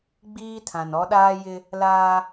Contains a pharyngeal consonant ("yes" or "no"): no